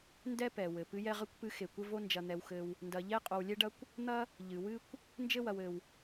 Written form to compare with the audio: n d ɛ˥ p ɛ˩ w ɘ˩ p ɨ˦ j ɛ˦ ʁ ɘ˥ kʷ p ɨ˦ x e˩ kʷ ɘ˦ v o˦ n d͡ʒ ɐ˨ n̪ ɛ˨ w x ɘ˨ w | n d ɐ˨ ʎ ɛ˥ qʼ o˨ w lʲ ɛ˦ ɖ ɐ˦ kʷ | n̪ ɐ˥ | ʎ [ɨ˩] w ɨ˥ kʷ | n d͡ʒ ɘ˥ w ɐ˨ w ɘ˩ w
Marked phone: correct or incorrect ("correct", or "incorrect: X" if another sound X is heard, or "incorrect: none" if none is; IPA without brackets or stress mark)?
correct